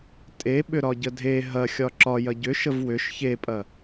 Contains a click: yes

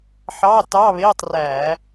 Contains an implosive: no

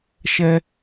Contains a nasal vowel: no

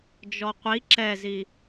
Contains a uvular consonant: yes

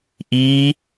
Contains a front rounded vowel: no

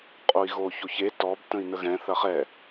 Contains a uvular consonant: yes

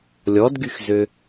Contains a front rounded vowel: yes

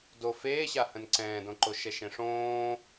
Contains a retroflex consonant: yes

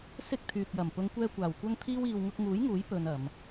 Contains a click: no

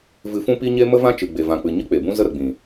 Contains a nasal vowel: yes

